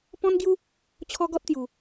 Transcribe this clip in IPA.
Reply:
pɔ̃˦nɡju˦ | t͡ɕʰɔ˦ɡɔ˦t̚t̪ju˨˩

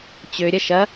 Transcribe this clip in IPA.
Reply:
t͡ɕøɾʲɐ ʃɐ

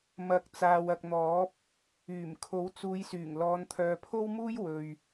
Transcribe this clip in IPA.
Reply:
mɐ˨˥k̚ t͡saː˨wɐ˨k̚n̪ɔː˨˥p̚ | yː˨˩m kʰo˨˥wt͡suː˨˧jsyː˨˩ŋ lɔː˨˧nt̪ʰœː˨pʰo˥wmuː˥j wɵ˨ɥ

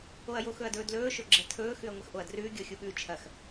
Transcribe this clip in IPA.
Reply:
oɐ̯joxɵɐ̯dɵː dlɵːʃɵ ɡ͡ǁɐtʰɵː xʉɐ̯ŋʷɐxʔoɐ̯drʉː ɡʲoxʲuɠʉːt͡ʃʰɐx

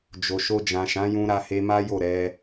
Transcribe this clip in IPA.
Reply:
d͡ʒo˨ʃo˧ d͡ʒã˨ʃã˨˦jũ˧ ɾa˧he˧ma˦ jo˦˨ɾɛ˧

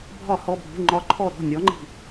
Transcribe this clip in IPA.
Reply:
bʱɒ˧˩˧hɔ˩˧˩bʱṳ˩˧˩ ŋ͡ǃɒ˨˦ǃʰɔ˧˩ ɾɔ̤˩˧˩nʲɔ˨˦ŋ͡ǃi̤˧˩

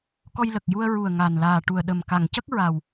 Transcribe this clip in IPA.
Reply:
kɔ˧jlə˨˩k̚ju˧ə̯ ɹu˨˩ə̯ ŋa˨˩n laː˨˩ʈu˨˩ə̯ ɗə˨˩m ka˨˩˨ŋcə˦˥k̚ ɹa˨˩w

